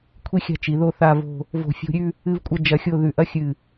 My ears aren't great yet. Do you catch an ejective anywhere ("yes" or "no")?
yes